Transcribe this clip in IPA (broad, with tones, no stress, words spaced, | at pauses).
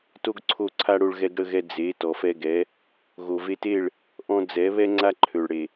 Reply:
to˦ɡǀʰo˦˨ǀʰa˦ɽo˧ɭ ɣɛ˧ɡɽə˧ɣɛ˧ d͡ze˨˦ tɔ˨fɛ˧ɡɛ˨˦ | ɣo˨ ve˧te˦˨ɭ | ʔɔ̃˧d͡zɛ˨˦ βɛ˦ŋ͡ǀa˦ǃʰø˨ɭɽe˨